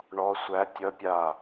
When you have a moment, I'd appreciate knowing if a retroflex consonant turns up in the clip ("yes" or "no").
yes